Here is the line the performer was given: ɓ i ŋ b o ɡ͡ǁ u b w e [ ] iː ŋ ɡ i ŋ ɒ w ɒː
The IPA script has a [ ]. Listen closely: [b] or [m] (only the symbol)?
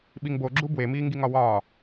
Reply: m